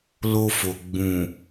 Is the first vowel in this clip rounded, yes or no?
yes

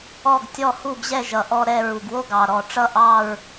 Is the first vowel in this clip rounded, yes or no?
yes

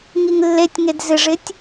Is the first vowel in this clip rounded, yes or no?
no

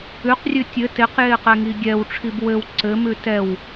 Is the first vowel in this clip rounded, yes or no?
yes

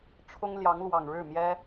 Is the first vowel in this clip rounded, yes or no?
yes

